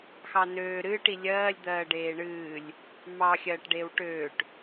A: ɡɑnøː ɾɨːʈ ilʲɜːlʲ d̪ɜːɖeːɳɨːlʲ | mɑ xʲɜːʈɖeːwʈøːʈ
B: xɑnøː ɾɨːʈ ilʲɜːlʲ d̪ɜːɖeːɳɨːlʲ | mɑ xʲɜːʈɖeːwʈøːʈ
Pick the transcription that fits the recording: B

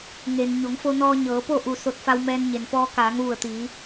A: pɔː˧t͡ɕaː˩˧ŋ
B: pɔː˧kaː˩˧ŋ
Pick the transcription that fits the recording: B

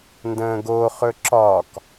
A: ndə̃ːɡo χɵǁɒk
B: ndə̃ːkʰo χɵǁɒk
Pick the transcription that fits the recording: A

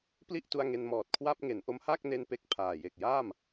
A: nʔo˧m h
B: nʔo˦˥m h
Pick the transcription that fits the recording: B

